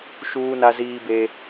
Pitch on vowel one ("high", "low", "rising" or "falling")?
high